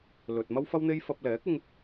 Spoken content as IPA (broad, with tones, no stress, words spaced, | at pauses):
lɵ˨t̚mɐ˥wfɐ˥wn̪e˥j fɐ˧p̚lɛː˨˥k̚ɪ˧ŋ